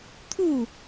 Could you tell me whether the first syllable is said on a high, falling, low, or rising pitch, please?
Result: falling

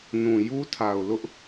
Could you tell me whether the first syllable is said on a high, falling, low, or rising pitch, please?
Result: low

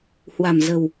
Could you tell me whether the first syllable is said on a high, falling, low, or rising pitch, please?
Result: low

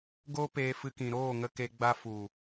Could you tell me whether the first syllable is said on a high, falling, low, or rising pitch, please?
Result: high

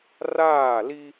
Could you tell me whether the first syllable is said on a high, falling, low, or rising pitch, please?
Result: falling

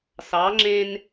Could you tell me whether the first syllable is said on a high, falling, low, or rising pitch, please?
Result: rising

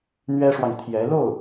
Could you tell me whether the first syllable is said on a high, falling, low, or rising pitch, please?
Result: high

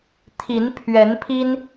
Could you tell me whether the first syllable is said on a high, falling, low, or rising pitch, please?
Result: rising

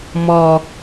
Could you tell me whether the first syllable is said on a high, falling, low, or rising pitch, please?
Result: low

